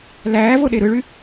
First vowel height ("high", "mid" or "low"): low